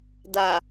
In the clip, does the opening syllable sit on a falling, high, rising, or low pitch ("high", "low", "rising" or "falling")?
low